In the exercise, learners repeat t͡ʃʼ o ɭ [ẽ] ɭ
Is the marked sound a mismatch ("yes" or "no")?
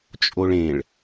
no